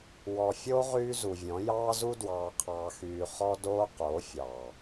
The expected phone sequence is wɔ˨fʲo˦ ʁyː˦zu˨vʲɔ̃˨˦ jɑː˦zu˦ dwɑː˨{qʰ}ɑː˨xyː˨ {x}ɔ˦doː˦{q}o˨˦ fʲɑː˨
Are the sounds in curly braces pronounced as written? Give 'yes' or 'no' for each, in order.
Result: yes, no, yes

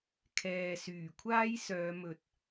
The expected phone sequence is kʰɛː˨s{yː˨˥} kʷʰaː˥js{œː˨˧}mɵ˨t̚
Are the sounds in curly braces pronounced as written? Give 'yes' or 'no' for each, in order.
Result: no, yes

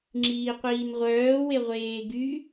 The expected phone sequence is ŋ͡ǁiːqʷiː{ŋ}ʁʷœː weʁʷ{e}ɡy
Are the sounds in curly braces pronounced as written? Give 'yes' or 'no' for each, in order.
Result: no, no

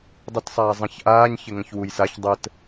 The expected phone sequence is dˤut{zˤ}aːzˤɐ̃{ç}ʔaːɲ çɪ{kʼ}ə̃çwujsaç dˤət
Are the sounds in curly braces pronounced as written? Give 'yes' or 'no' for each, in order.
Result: no, yes, no

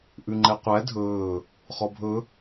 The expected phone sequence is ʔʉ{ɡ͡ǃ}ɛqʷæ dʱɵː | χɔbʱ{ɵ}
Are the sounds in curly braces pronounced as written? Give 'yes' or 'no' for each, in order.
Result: no, yes

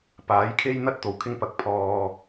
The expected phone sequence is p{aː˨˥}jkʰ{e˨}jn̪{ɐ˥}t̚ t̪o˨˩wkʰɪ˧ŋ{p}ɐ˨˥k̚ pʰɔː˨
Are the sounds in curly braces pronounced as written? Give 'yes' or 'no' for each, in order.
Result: yes, no, yes, yes

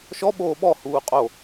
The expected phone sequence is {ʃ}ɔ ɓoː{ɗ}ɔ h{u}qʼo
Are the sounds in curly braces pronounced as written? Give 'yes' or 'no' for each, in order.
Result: yes, no, no

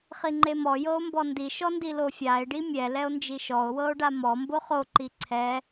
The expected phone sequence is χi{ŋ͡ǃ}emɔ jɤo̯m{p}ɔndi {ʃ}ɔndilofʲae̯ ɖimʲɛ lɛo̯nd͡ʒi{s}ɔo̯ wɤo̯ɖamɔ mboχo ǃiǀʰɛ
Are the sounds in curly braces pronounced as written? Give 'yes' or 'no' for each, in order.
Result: yes, no, yes, no

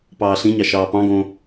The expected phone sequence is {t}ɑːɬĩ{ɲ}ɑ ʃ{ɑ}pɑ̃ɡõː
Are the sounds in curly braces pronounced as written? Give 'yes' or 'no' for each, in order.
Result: no, yes, no

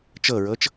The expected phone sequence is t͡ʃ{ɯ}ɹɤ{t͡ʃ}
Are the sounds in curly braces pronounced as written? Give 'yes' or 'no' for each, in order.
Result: no, yes

